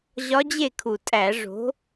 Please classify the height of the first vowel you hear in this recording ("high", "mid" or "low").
low